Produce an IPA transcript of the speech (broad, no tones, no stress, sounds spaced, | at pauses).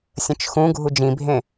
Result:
sʲ ə̃ t͡ʃ x ũ ɡʱ u d͡ʒ ĩ bʱ ẽ